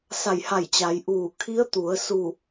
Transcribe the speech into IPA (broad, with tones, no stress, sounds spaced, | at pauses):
s a˧˩ j h a˧˩ j t͡ɕ a˩˧ j ʔ uː˧˩ kʰ i˧˥ ə̯ t̪ u˩˧ ə̯ s u˧˩